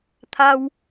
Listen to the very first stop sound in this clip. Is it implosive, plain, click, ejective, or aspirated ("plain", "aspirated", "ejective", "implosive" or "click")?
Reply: aspirated